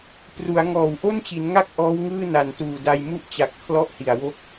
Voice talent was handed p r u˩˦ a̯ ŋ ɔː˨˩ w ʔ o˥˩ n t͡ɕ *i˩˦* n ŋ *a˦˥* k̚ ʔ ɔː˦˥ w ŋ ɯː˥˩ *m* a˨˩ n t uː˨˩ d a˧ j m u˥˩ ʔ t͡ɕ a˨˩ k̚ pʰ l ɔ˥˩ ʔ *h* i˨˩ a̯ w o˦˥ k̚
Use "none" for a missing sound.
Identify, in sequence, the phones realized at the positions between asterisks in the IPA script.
i˩˦, a˥˩, n, h

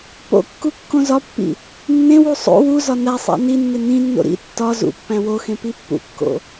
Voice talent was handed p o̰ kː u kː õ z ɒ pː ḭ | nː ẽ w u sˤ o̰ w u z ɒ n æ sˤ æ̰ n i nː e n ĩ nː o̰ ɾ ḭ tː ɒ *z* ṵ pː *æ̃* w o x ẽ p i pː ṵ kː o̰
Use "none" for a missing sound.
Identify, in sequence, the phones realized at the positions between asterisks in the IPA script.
z, æ̃

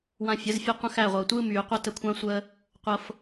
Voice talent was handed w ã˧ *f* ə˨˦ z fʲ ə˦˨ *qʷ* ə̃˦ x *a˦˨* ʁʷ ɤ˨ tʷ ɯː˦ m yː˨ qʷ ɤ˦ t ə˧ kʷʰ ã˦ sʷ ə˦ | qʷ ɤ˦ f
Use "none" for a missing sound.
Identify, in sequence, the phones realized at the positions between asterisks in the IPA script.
fʲ, qʷ, æ˦˨

